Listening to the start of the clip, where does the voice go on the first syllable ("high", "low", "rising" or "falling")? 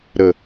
falling